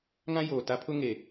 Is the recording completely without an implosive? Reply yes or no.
yes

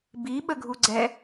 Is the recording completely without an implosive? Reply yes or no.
no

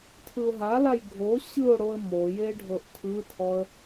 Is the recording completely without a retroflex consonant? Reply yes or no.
no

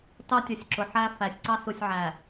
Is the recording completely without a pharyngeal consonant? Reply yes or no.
no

